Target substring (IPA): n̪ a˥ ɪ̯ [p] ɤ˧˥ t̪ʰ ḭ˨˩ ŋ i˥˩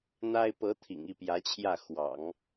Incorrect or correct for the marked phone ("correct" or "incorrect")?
correct